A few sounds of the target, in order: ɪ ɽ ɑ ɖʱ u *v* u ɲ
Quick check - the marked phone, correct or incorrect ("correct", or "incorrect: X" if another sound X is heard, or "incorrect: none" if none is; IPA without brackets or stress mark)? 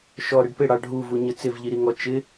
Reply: correct